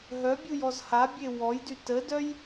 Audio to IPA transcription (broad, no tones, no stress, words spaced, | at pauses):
ɦœbʲujɔz habʲe wɔjdy tədœj